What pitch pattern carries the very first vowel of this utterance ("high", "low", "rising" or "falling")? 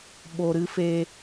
low